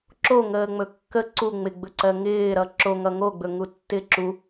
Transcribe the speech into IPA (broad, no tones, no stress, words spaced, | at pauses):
ǁo ŋəːŋ͡mɵkːə ǀu ŋ͡mɪɡ͡bɵǀɜ ŋɪːɾʌ ǁoŋʌ ŋoɡ͡bɵ ŋutːɪ ǁu